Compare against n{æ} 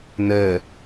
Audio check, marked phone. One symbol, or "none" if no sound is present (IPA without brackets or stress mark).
ɜ